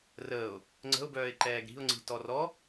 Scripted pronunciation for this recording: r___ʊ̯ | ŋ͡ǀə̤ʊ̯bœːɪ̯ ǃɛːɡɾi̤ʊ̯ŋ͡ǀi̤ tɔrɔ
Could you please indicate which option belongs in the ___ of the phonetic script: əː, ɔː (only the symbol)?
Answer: əː